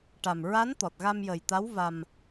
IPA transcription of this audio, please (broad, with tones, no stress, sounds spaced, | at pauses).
ʈ a˨˩ m ɹ a˧˥ n t̪ ɔ˨˩ t̚ ɣ a˧ m j ə˨˩ j t̪ a˧˥ w v a˧ m